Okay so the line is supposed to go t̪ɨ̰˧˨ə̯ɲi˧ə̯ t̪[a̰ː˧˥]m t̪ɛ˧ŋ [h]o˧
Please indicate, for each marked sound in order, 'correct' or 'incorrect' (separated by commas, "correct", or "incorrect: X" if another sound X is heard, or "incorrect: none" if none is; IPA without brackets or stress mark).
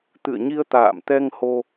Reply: incorrect: a̰ː˧˨, correct